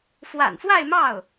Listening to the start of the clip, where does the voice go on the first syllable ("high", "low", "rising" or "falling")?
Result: low